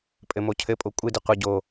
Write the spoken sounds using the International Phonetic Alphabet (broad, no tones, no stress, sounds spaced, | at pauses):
pʼ ɘ m o cʰ ɘ pʼ o kʷʼ ɨ d ɨ qʷ ɨ ɟ o